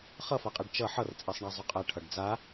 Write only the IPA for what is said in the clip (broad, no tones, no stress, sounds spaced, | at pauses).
χ ʌ f a qʼ ɛ ɖ t͡ʃ ʌ ħ ʌ r t͡sʼ ɛ sˤ ɳ æ zˤ œ qʼ æ ʈʰ ʌ ɖ d͡z a